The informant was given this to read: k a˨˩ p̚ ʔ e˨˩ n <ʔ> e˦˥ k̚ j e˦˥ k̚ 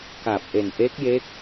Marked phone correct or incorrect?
correct